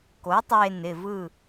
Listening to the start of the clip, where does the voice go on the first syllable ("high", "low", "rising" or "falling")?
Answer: rising